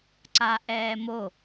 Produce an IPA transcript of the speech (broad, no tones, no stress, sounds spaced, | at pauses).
ǀ a ʔ ɛː m o